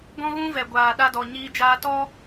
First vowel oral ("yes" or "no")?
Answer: no